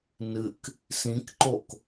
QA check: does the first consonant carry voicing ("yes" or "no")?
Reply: yes